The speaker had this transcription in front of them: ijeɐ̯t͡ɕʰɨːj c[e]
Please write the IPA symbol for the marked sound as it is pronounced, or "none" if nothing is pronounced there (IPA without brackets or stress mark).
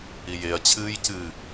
ɨ